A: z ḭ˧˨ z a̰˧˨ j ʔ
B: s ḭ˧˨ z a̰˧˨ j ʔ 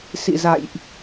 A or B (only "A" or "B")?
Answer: B